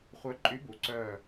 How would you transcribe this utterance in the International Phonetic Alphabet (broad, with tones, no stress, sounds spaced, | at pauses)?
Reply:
χʷ œ˧˥ ǃʼ y˧˥ b u˩˥ ǀ œ˧˩